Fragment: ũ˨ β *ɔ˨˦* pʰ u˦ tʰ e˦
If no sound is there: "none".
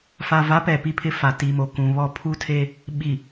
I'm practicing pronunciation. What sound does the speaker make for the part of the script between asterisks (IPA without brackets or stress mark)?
ɔ˦˨